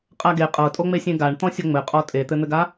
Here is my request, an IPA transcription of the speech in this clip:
qʼ a ɡ e qʼ ɤ tʼ o ŋ͡m e sʲ ẽ ɡ a ɳ t̪ ɔ̃ sʲ o ŋ͡m ɘ qʼ ɔ tʼ e t̪ ɘ n̪ ɘ ɡ a

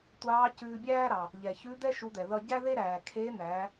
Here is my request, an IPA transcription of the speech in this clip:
tʷ ɑː˧˥ c ʉː˧ bʲ æː˥ ɾ ɑ˩ | ʎ ɛ˩ ç ʉ˧˥ d̪ ɛ˥ ʃ u˧˥ d̪ ɛ˩ ð ʌ˧ ɟ æ˥ ð e˥ ɾ æː˩ kʰ e˧˥ n̪ æ˩˧

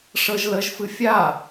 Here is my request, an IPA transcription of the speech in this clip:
ʂ ɤ ʒ l ə ʒ f ɨ fʲ a

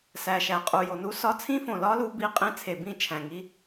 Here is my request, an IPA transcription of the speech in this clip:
s æ˨˩ ʃ æ˨˩ qʼ u˨˩ j o˨˩ n u˦˥ s ɒ˦˥ t͡sʰ ĩ˦˥ f õ˨˩ l ɒ˦˥ l u˦˥ b i˦˥ qʼ ĩ˦˥ t͡sʰ e˨˩ b ĩ˥˧ t͡ʃʰ æ̃˨˩ ŋ i˦˥

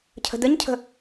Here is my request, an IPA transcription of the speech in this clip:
cʰ ə̤ d̪ ə ɲ cʰ ə̤

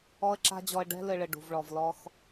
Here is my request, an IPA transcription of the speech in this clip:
ɔ˦ ə̯ ǁ a̤˦ d͡ʑ ɔ˧ ə̯ ɖ ɛ̤˦ l ɘ˧ ɭ ɘ˨ ɖ ṳ˨ v ɭ ɔ˨ v l ɔ˧ x

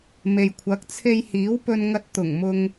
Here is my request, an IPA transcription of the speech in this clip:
m e˨ j kʷʰ ɐ˨˥ k̚ t͡sʰ e˧ j h iː˨˥ w p ɵ˧ n ŋ ɐ˧ t̚ t̪ ʊ˨˩ ŋ m ʊ˧ ŋ

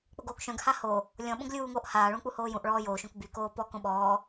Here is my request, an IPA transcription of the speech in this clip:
k͡p o ɡ oː k ʃ œ̃ ɡ h a h o | lʲ ɔ̃ ɓ õ ɡ lʲ uː ŋ oː ʔ h aː ɭ ũ k͡p u h oː j ũ ʔ ɭ ɔː j oː ʃ õ k b y k oː p ɔ k õ ɓ ɔː

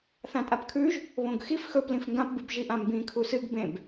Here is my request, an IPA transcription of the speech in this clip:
θ ã tʼ a p kʰ ʉ ʒ | β õ ɡ x i f x ɵ p l ĩ f ŋ ɡ ã p b ɨ b ʒ i ʔ ã m b ĩ kʰ u s ɨ ɡ b ẽ b

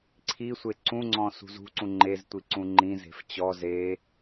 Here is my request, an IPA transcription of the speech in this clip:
ǀʰ i sʷ e ǀ ũ ŋ͡ǀ ɔ̃ s ṳ z ṳ ǀ ũ ŋ͡ǃ e z tʷ i ǀ ũ ŋ͡ǃ ĩ z e̤ f t͡ɕ ɔ z e

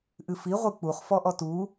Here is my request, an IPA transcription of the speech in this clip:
ʔ ɨ f i ʁʷ ɨ k͡p u χ f ɔ ʔ ɔ t u

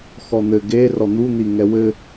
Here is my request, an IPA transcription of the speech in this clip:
x ɔ n̪ ɘ ɡ e r ɔ n̪ u n̪ i ŋ ɛ w ɘ

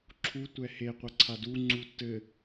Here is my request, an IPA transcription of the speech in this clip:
ǁʰ u tʷ ɛ h e qʷ ɐ ǀʰ a d u ŋ͡ǀ u tː ɘ

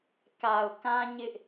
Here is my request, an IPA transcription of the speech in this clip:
k a˨ ʊ̯ k ã˦ ɲ ɪ˦ ʔ

